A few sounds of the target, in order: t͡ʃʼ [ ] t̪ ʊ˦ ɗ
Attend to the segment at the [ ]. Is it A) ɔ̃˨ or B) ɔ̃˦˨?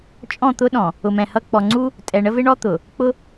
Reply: B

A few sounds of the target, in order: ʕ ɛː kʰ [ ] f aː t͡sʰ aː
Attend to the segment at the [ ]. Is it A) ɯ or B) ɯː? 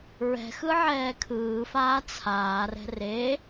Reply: B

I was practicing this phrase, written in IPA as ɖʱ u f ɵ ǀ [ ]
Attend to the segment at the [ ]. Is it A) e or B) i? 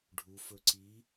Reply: B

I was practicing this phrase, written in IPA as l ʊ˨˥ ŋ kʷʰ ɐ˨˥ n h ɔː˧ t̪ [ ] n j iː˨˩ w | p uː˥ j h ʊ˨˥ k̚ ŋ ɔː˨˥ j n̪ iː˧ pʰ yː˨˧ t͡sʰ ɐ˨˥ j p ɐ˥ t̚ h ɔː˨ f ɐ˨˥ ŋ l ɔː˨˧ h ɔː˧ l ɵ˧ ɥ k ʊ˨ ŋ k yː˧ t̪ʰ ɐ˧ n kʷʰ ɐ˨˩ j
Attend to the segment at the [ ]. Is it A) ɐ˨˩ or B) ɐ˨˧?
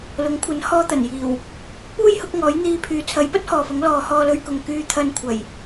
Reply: A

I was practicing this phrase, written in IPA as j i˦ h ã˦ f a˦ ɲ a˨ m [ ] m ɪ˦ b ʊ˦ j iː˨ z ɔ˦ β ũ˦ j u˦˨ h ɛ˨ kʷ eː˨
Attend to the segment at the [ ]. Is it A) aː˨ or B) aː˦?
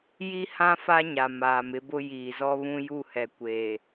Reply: A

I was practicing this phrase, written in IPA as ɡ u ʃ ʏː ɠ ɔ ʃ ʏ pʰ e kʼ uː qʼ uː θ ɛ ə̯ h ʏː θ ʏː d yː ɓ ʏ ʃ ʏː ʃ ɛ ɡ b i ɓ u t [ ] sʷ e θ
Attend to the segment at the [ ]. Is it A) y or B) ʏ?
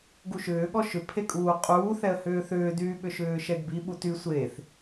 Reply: A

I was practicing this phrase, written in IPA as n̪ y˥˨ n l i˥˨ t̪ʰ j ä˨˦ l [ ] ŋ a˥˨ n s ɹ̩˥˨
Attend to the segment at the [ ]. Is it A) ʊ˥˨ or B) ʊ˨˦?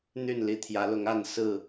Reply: B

